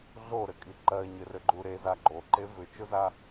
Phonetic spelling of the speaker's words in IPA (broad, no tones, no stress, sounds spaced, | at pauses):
ɮ o ɾ ɘ kʼ i ǃ ɜ ɲ ɘ r ɘ ɡ͡ǃ u ɾ e z a ɡ͡ǃ o ǃ e v ʏ t͡ʃ o z a